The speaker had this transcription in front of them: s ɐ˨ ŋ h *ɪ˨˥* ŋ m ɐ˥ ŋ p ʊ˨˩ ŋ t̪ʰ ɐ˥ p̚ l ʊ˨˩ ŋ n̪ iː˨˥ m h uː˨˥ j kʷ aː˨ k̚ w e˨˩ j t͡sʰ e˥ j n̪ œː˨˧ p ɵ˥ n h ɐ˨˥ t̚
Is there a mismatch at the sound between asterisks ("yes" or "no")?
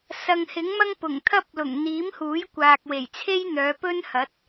no